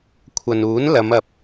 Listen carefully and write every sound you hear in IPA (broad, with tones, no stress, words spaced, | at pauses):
kʷʰɐ˨nuː˨˥n lɐ˨˧m ɐ˨p̚